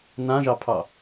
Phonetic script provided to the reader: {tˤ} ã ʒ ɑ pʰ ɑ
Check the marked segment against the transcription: incorrect: n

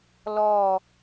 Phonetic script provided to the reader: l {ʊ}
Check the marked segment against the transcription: incorrect: ɔ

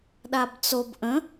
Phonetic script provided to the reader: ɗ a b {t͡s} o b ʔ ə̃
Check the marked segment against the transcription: correct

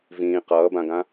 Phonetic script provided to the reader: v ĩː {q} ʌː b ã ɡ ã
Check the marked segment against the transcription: correct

